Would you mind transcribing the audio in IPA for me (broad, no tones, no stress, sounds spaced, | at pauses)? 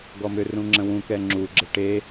ɡ ɔ m ʏ r ũ ŋ͡ǁ ə̃ w ũ k ɛ ŋ͡ǁ u ɡ͡ǁ ə ʈ e